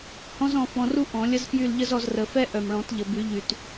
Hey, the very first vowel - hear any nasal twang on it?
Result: yes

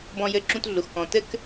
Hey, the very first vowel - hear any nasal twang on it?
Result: yes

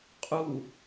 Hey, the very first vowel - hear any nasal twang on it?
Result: no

